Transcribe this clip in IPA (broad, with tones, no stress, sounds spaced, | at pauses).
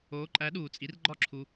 oː˨˥ ǃʼ æ˨˥ ɗ uː˨ t͡sʼ i˨˥ r ɡ͡ǃ ɒ˥˩ ǁʰ u˨